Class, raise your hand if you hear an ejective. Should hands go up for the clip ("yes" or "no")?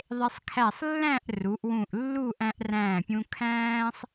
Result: no